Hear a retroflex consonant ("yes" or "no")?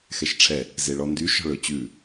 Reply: yes